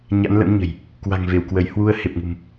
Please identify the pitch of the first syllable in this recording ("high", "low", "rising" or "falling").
rising